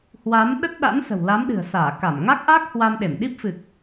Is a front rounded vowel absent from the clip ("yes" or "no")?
yes